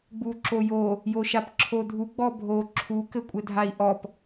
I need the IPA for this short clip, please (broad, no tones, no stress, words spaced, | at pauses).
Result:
ɡ͡buǁojo | joʃapǁʰodʱu ɡ͡bɔbʱo ǁʰu kɘkʷʼɘdʱai̯ʔɔp